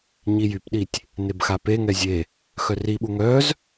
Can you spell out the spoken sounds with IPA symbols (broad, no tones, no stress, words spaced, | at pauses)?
ɲijypɗitʲ | nebxapeŋɛ zʲe | xœriɓu ŋœz